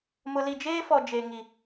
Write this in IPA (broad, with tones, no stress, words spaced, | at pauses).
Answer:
mʊ˨li˨d͡ʒeː˦fɔ˨ d͡ʒe˨ŋi˨